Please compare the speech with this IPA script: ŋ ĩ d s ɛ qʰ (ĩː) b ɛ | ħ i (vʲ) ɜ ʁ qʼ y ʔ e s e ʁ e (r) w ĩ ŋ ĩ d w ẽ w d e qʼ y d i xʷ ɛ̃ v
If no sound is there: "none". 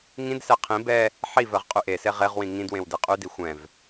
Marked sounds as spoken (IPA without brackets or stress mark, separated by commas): ĩ, v, ʁ